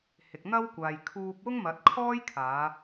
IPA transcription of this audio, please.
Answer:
h ɪ˨ k̚ n̪ ɐ˥ w kʷ aː˨ j kʰ uː˧ p̚ w ʊ˥ ŋ m ɐ˨˥ t̚ kʰ ɔː˥ j kʰ aː˨˧

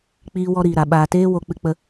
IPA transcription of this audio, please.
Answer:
k͡p iː˧ w ɔ˧ ɾ iː˨ ɾ a˨ ɓ aː˨ t eː˦ w o˧ k͡p ɨ˧ k͡p ə˧

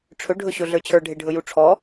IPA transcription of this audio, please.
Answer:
ʈ͡ʂʰ ɵ ɖʱ ɵ ɕ ɵ ɮ ə˞ t͡ɕʰ ə˞ ɖʱ e ɖʱ ɵ j u ʈ͡ʂʰ ɔ

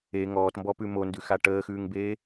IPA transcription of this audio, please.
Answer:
e ŋ ɔː t m b ɔ p ʉ m o n d ʉ x a ʈ əː x ʉː ŋ b eː

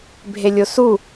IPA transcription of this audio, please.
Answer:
bʱ e lʲ o s u

